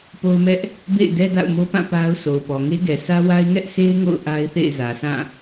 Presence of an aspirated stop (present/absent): absent